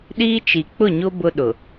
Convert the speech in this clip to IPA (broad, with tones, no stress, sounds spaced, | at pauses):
ɗ iː˦ t͡ʃ i˨ k͡p ʊ˦˨ ɲ o˦ b ʊ˦ ɗ ʊ˨